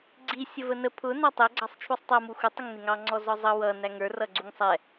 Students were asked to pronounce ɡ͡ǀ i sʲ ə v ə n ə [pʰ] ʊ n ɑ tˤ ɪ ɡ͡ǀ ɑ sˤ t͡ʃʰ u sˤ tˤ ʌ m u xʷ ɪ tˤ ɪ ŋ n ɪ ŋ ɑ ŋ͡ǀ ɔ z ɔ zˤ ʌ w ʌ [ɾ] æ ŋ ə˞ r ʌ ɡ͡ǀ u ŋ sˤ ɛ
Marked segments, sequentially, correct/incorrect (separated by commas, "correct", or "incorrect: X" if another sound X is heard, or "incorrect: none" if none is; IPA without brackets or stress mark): correct, incorrect: n